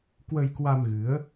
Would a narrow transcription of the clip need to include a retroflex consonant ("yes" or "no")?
no